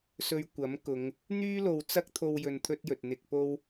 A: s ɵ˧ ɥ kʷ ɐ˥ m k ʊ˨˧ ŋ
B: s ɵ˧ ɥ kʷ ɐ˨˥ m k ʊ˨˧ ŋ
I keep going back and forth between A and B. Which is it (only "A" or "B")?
B